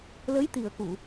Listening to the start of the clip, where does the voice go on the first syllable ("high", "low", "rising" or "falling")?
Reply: rising